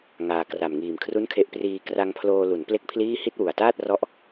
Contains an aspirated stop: yes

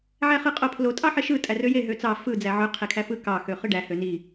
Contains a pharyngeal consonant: yes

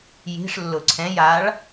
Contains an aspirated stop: yes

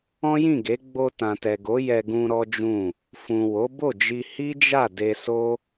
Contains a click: no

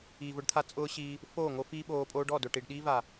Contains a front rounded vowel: no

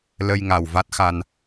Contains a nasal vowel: no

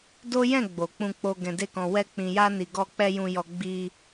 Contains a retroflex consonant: no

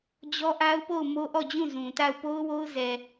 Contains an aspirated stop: no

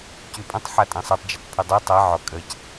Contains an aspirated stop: yes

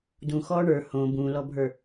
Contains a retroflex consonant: yes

